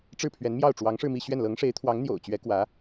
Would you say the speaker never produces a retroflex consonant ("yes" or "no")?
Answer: no